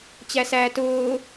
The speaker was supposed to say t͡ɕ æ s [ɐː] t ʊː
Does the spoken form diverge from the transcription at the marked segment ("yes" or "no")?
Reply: yes